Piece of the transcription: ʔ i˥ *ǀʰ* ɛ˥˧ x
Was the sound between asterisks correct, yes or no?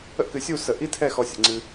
no